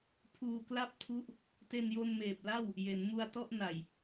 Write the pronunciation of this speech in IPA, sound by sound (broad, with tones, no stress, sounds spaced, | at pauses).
pʰ uː˧ k l a˥˩ p̚ tʰ u˦˥ ʔ | t e˧ n j o˧ n m eː˨˩ p̚ l a˥˩ w | j e˩˦ n m u˧ a̯ t ɔ˥˩ ʔ n a˨˩ j